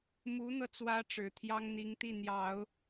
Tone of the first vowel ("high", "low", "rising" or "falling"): rising